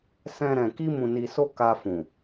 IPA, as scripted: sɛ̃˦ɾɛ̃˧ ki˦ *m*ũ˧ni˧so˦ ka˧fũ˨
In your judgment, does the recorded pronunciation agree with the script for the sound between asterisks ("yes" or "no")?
yes